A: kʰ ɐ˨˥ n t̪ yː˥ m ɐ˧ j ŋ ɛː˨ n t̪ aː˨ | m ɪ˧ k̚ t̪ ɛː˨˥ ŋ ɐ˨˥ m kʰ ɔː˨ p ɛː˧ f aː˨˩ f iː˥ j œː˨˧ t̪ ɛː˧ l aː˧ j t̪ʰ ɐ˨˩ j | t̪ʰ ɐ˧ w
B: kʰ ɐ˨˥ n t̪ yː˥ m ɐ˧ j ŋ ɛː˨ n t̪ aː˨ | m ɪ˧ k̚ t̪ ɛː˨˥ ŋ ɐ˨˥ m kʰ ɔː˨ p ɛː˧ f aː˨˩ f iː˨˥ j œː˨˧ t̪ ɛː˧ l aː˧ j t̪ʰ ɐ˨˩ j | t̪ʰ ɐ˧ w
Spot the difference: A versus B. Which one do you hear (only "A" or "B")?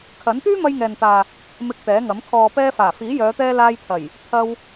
B